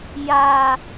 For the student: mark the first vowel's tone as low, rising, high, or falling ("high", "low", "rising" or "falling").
low